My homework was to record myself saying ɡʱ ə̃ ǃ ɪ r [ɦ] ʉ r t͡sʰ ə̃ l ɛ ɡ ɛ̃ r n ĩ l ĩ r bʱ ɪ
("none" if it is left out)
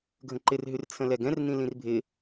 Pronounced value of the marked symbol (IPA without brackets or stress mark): ɦ